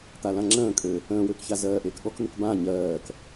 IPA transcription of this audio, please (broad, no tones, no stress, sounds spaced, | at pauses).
t̪ a l ã ŋ͡ǁ ə̃ː kʼ ø | ə̃ː w ø k ç a z ɜː ʔ eː k ɠ ɔ k n̪ ʉ k b ã ɲ ɜː k